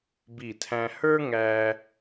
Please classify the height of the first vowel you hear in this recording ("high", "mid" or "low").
high